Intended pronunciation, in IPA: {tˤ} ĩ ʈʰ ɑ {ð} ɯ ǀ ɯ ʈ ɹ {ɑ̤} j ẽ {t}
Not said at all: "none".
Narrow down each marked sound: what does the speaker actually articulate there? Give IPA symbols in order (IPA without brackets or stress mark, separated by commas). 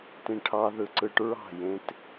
t, ð, ɑ̤, t